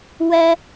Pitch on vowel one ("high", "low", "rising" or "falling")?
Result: high